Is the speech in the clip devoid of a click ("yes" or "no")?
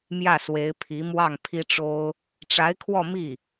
yes